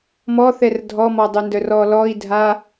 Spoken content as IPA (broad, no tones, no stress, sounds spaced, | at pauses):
m ɔ θ ɛ r dʱ ɔ m ɔ dˤ ø n d œ r ɔ l ɔ i̯ dʱ a